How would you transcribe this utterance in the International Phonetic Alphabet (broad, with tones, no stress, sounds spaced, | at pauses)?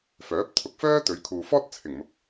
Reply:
f œː˨˥ p̚ t̪ʰ ʊ˧ k̚ f œː˥ t̪ ɵ˨˧ ɥ kʰ uː˨ f ɔː˥ t̚ t͡sʰ ɪ˨˩ ŋ m ʊ˨ k̚